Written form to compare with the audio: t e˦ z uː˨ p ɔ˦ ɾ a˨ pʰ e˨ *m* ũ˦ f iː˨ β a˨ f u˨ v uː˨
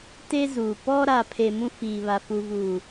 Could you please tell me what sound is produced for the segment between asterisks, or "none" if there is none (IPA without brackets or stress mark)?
m